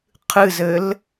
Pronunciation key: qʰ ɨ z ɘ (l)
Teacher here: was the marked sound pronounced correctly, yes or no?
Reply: yes